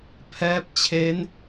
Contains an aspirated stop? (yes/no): yes